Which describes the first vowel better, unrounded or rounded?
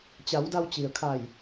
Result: unrounded